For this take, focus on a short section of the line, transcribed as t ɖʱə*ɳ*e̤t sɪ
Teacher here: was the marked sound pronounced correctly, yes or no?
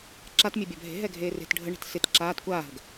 yes